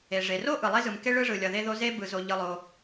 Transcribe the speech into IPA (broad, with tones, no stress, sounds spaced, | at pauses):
e˩ ʐ e˩ r o˥ ʔ ɯ˩ lˠ e˥ z ɯ˩ m k e˥ ɭ ɯ˥ ʐ ɯ˩ lʲ ʌ˩ ð e˥ ð o˥ z e˥ b ɯ˩ z o˩ ʎ ɯ˩ lˠ o˩